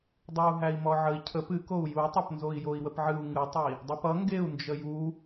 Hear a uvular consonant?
no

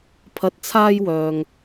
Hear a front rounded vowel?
yes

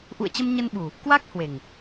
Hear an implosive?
yes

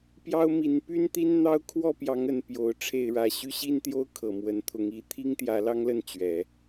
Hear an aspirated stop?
yes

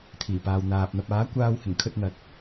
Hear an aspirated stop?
yes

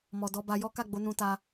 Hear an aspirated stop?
no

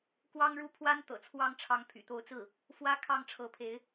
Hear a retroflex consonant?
yes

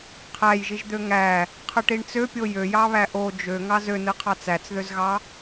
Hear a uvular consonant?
yes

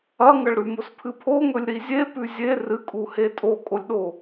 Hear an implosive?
yes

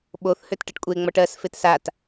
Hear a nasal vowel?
no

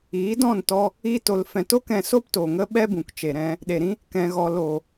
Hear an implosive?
yes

